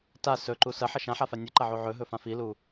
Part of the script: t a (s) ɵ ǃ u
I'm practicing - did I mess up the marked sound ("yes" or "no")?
no